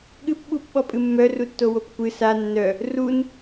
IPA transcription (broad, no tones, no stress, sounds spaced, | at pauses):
ɠ ɨ p ɓ u p ɓ ɔ pʼ ɨ mː œ r u tː o w o p kʷ ɨ s a nː œ | r u n